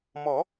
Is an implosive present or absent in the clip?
absent